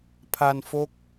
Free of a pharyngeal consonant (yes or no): yes